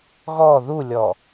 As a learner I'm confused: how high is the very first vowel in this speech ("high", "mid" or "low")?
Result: mid